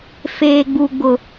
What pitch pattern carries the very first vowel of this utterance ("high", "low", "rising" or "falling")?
high